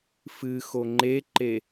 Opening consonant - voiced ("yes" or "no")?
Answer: no